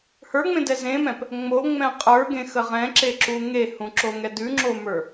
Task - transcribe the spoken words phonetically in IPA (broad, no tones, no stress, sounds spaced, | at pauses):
h ə˞ ŋ͡m ẽ d ɛ z ẽ m ɛ̃ p | ŋ͡m o ŋ͡m ɛ̃ qʼ ə˞ ɡ ẽ x ə ʁ ɛ̃ ǁ e ǁ u ŋ e h ũ ǁ o ŋ ɛ d ʉ ŋ͡ǁ o m ə˞